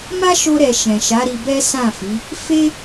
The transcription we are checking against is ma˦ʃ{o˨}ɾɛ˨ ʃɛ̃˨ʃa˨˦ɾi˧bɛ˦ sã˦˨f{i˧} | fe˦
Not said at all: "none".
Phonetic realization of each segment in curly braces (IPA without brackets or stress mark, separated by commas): o˧, i˨˦